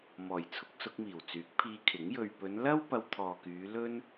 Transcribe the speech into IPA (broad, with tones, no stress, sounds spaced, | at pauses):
m ɔː˨˩ j t͡sʰ ʊ˧ k̚ s ʊ˧ k̚ m iː˨˩ w t͡s yː˨˥ k̚ pʰ iː˧ kʰ ɪ˨˥ ŋ j ɵ˨ ɥ p ɵ˨˧ n l ɐ˥ w p ɐ˧ w t̪ʰ ɔː˨ k yː˨˧ l ɵ˥ n